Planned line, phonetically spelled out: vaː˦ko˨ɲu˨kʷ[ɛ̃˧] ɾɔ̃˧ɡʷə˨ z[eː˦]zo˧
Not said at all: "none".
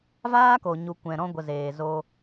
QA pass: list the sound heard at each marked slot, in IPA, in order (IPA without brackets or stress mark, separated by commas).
ɛ̃˨, eː˨